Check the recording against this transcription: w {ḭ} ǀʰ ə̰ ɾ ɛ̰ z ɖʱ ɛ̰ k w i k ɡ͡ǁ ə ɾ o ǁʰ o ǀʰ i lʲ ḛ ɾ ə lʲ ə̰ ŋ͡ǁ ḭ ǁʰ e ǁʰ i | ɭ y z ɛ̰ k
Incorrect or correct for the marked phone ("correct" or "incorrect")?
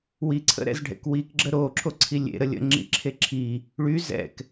incorrect